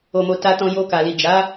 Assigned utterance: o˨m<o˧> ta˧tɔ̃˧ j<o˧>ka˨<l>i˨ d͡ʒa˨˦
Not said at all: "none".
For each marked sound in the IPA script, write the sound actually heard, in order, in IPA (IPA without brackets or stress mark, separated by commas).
o˨, o˧, l